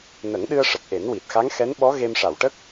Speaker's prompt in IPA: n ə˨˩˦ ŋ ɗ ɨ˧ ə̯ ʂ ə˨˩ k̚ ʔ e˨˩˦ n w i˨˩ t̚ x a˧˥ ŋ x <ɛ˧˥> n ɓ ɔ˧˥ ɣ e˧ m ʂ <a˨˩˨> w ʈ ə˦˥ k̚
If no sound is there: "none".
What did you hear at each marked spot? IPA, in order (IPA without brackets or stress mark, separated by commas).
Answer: ɛ˧˥, a˨˩˨